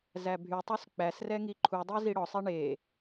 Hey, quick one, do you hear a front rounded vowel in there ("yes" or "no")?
yes